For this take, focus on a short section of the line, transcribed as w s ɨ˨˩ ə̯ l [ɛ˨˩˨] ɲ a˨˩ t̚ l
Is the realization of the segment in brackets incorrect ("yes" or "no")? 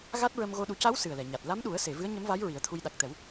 no